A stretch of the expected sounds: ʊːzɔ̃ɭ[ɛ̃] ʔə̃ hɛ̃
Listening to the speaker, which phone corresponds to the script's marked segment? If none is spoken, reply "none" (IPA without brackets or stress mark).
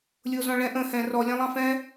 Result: ɛ̃